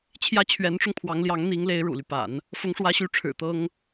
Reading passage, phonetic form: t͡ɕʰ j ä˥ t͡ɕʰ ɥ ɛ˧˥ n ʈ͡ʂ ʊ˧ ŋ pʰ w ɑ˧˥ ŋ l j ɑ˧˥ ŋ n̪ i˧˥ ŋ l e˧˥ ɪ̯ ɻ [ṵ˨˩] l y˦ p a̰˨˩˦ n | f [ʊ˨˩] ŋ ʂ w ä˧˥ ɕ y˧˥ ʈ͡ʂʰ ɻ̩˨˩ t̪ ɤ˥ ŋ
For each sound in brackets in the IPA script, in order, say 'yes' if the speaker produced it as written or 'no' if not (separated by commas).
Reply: yes, no